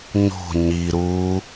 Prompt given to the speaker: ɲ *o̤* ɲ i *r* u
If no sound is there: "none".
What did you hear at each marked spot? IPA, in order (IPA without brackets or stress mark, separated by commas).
o̤, ɾ